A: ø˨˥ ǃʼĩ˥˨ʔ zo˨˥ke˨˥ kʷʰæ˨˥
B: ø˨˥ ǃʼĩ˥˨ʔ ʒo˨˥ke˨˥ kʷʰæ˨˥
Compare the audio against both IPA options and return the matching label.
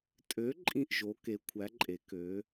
B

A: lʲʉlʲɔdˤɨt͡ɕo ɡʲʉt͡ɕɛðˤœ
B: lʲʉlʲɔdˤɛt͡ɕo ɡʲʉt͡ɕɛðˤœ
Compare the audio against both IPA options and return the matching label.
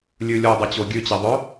B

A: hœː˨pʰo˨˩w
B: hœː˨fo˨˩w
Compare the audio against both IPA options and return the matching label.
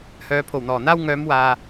A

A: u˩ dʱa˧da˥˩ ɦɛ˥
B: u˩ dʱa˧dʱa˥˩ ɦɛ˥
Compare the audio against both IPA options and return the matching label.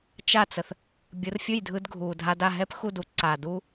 A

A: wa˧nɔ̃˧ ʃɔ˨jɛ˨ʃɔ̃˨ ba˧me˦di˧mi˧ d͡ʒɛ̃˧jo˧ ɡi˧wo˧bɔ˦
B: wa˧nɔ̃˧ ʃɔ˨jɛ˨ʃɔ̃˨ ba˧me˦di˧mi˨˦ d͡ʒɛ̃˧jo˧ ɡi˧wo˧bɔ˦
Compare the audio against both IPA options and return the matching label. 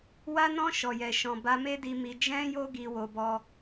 A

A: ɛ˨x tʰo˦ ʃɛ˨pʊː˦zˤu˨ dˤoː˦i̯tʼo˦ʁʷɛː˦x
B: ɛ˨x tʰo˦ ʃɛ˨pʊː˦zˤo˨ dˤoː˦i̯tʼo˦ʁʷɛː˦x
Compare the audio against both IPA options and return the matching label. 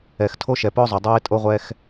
B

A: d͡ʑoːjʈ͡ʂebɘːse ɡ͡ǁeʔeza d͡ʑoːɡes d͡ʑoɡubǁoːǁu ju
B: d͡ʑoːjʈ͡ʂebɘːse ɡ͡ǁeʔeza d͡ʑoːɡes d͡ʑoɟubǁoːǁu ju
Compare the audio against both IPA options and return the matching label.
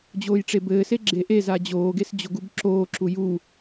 A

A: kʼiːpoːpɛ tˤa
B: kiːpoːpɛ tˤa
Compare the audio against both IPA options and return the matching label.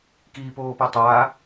B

